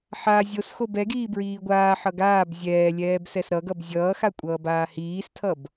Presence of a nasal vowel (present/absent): absent